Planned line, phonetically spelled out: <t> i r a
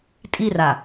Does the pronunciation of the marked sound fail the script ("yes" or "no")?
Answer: yes